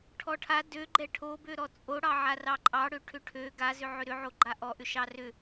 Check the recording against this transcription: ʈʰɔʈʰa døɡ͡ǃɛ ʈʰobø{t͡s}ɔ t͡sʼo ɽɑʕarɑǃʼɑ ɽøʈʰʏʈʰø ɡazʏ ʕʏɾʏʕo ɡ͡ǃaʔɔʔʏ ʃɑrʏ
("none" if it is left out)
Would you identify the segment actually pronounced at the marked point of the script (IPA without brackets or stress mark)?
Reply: ɾ